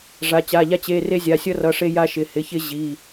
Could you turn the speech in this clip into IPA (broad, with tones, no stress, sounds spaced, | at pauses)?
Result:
ʐ a˩˧˩ t͡ɕ a˩˧˩ ʎ a˦ t͡ɕ e˩˧˩ r e˦ zʲ a˩˧˩ sʲ ʌ˦ r ʌ˩˧˩ ʂ e˦ j a˦ ʃ ɪ˩˧˩ h ɪ˩˧˩ ç ɪ˦ ʑ i˩˧˩